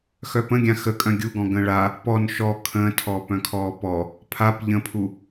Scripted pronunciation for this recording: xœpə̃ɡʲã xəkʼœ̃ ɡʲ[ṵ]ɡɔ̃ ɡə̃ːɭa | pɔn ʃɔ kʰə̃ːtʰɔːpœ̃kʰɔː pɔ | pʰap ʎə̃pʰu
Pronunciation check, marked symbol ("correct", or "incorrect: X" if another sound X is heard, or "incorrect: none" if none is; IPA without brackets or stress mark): incorrect: u